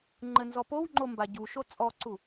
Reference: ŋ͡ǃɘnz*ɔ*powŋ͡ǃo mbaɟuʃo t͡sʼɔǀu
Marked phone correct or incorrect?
correct